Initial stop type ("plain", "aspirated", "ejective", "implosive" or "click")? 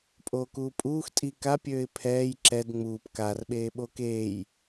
ejective